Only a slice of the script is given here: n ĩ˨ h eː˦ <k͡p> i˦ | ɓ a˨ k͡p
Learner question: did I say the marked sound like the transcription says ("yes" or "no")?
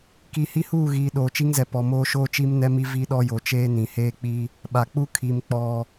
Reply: yes